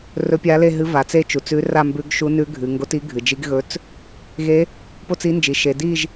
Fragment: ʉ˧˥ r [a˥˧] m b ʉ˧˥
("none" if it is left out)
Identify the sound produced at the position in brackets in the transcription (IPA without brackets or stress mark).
a˥˧